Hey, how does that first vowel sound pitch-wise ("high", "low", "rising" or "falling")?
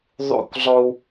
falling